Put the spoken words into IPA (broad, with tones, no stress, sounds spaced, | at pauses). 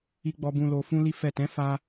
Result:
i˧ ɡ͡b ɔ˧ b ũ˧ l o˧ f ũ˦ l i˦ f ɛ˦˨ t ɛ̃˨˦ f a˧